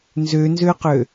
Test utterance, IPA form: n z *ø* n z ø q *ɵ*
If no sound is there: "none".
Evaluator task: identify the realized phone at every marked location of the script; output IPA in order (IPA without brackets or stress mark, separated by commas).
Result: ø, ø